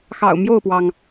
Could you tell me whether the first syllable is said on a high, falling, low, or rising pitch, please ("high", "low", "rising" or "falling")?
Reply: low